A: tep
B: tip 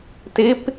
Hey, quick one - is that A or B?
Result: B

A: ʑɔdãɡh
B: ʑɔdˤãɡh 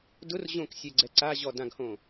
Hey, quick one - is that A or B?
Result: A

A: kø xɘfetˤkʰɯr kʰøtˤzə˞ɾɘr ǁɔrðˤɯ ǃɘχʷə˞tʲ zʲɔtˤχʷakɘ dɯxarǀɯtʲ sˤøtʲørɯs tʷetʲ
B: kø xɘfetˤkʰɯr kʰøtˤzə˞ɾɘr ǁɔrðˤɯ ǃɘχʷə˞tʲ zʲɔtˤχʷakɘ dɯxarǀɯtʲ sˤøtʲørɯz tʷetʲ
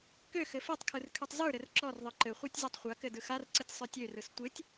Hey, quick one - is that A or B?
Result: A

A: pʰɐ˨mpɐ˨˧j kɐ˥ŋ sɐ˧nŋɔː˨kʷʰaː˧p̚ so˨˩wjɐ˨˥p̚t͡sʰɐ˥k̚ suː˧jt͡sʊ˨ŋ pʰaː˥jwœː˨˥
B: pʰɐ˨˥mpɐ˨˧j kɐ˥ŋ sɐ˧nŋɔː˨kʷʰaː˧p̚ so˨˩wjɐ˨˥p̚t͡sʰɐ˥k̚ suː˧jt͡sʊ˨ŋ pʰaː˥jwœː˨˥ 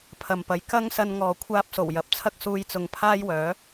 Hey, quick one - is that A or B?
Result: A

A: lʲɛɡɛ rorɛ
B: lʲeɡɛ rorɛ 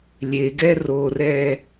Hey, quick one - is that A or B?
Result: B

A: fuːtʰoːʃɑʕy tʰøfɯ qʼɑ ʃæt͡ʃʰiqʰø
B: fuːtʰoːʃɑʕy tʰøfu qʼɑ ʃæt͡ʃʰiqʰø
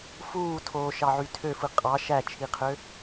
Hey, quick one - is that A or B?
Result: A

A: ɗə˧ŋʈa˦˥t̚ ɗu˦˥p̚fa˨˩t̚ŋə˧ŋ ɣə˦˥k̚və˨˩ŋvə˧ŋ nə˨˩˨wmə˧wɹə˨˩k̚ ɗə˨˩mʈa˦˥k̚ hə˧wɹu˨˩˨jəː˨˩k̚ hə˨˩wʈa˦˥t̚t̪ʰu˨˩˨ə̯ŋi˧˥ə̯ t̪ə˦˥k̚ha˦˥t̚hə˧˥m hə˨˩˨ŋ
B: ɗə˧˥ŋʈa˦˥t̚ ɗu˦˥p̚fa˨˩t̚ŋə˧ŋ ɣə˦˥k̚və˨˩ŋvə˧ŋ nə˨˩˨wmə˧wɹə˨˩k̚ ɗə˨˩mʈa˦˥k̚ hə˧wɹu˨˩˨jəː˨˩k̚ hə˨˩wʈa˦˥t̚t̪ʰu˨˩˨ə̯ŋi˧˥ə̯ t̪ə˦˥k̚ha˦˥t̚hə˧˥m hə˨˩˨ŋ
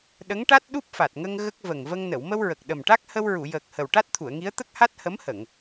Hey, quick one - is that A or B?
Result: B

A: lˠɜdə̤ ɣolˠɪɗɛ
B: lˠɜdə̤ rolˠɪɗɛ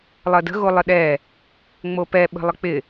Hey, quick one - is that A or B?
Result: A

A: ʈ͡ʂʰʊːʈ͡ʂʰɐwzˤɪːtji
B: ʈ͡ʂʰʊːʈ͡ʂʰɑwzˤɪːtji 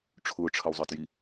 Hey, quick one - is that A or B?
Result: A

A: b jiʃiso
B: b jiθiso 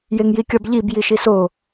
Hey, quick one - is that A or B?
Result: A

